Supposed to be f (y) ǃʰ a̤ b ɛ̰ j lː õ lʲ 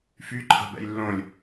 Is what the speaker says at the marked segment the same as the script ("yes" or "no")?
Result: yes